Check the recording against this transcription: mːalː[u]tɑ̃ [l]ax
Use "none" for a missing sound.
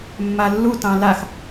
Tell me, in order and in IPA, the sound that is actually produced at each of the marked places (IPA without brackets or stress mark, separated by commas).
u, l